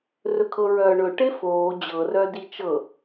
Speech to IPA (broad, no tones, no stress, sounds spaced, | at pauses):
r ɵ kʰ ɤ ɹ œː ɳ ɵ ʈ e f oː d͡ʑ ɤ r œ d i t͡ʃ ɤ